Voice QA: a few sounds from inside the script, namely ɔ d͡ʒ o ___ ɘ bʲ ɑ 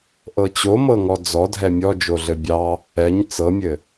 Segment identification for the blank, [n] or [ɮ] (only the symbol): ɮ